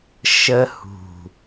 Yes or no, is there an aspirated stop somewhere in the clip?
no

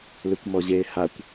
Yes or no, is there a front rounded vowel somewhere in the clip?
yes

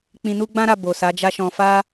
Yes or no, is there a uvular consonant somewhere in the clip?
no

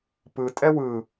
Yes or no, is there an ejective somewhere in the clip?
yes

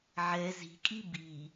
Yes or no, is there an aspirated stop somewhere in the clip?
no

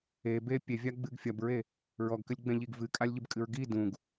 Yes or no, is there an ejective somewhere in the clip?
yes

